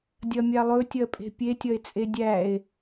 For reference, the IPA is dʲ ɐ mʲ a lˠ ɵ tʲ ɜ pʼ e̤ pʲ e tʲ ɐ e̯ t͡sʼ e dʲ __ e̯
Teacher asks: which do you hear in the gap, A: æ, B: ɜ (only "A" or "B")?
A